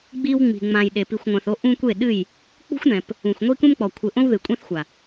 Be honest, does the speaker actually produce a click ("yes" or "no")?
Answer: no